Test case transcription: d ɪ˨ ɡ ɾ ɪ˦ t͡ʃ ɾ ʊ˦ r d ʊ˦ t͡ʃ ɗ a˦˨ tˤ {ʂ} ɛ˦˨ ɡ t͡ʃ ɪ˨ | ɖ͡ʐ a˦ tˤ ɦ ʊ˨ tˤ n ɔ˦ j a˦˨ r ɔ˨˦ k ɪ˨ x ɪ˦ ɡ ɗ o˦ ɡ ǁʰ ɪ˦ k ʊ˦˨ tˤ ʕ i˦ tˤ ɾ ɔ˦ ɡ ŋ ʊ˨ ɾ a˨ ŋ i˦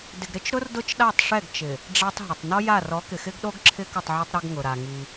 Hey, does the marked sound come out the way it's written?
yes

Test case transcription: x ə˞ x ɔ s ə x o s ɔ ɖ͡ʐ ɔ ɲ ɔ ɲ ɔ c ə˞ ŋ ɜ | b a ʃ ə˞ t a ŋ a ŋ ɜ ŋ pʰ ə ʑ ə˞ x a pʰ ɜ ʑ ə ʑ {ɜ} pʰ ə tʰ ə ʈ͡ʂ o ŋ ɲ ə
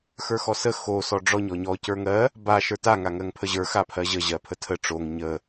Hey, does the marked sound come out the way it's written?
yes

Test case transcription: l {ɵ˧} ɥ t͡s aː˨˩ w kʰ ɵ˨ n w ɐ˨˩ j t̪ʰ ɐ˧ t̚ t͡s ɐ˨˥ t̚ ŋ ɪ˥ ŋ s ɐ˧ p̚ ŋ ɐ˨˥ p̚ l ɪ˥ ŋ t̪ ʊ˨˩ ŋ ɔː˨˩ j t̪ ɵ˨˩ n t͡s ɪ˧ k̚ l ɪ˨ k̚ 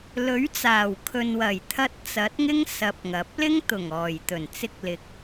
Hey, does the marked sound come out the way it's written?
no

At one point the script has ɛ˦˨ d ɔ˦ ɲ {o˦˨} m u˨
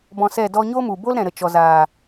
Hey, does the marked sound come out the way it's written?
no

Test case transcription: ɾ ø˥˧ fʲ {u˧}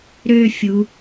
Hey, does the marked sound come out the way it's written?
no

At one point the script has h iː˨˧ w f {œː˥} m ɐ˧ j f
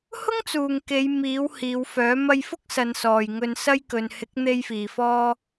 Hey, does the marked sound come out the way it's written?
no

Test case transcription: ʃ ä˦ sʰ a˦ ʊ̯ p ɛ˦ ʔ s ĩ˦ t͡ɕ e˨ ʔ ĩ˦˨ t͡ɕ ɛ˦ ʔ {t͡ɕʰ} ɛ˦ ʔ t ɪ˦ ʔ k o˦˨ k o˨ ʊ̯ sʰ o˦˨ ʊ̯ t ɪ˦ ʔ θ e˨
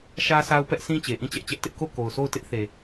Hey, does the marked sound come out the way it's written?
no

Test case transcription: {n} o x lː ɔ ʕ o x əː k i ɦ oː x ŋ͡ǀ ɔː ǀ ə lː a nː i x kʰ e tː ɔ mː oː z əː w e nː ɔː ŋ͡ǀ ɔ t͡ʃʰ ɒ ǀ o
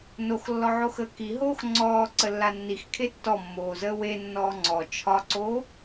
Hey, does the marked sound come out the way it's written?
yes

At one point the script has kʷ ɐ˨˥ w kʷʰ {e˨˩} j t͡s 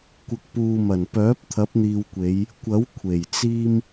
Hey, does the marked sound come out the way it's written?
yes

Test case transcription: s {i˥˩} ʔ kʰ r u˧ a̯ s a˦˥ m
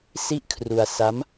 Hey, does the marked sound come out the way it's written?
yes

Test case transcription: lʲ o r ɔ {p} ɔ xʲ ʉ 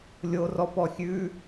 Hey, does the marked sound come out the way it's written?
yes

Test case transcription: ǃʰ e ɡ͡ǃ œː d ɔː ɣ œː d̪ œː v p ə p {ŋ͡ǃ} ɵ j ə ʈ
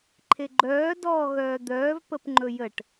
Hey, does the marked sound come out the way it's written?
yes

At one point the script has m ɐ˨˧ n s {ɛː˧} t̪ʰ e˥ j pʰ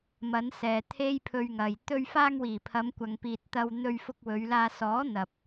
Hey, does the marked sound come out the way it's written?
no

